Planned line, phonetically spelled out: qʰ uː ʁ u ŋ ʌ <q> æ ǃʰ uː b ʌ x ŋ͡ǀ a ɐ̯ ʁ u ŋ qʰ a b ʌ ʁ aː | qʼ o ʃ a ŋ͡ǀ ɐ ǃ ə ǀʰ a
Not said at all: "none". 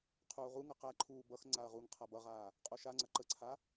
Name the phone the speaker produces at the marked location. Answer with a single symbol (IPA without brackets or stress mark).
q